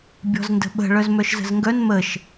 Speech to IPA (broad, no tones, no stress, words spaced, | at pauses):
bʲɔ̤zndə̤ɓə̤ ɭœzmœʃzə̤zŋɡœn məʃ